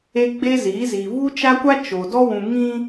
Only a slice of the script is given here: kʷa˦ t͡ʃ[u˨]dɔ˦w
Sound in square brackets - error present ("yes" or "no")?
yes